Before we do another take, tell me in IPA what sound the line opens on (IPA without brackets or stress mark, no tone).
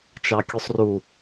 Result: t͡ʃ